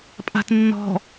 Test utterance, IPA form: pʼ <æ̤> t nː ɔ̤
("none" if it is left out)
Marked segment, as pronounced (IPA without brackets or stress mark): a̤